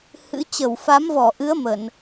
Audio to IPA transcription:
h ɨ̰˧˥ t͡ɕ ə˧˩ w f a˨˦ m v ɔ˧˩ ʔ ɨ˨˦ ə̯ m ə˧˩˨ n

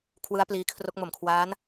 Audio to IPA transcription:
kʰ w ɯ˦˥ a̯ p l iː˧ kʰ r o˦˥ k̚ m o˨˩ m kʰ w aː˦˥ n

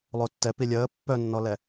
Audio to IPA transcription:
lˠ o tː ɛ p i lʲ əː pː œ nː ɔ l ɛ

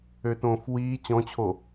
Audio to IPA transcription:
ø t õː f w iː t͡ɕ ɔ̃ t͡ɕʰ o

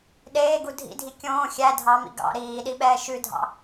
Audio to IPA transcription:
ɗ eː ɡ u dʱ ḭ dʱ i kʲ õː xʲ æ dʱ ɑ m ḭ ɡ ɑ̰ ɾ iː ɗ i ɓ ɛː ʃ ʉ dʱ ɑ̰

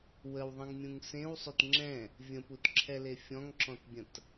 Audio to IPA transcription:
w ə w ðˤ ə̃ ŋ mʲ ũ ŋ s ẽ w sˤ ø t ŋ͡ǁ ɛ̃ | vʲ ə̃ p u t ǁʰ ɛ l e fʲ ɔ̃ ŋ ǁ ɔ̃ t bʲ ə̃ t

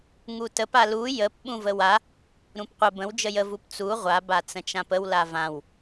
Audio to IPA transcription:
ŋ u t ə p a l u j ə p ɓ ũ v ə w a | ɾ ũ p qʷ ə b ə̃ w d͡ʒ ə j ə v u p t͡s u ʁʷ a b a t͡s ə̃ t͡ʃ ã p ə w l a v ã w

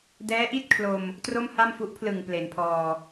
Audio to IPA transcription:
d ɛː˦˥ ʔ i˥˩ t̚ kʰ l o˧ m | t r o˥˩ m h a˥˩ m f u˦˥ ʔ pʰ l ɯ˨˩ ŋ p l e˩˦ n pʰ ɔː˧

